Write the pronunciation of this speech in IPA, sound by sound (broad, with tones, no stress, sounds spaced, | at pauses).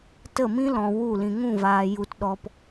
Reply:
t ə˦˨ m ĩ˦ l ɔ̃˨ w u˦˨ l ĩ˨ ŋ ũ˦˨ v aː˨ j u˨ t ɗ ɔ˨ p